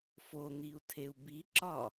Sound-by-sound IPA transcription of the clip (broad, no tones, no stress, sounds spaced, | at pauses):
f o n̪ i u̯ tʰ e u̯ b i ǁ ɒ